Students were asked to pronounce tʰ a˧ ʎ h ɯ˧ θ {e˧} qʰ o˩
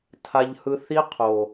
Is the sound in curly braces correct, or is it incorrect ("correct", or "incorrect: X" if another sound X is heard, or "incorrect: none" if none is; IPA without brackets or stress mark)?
incorrect: i˧